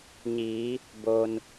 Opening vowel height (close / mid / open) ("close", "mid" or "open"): close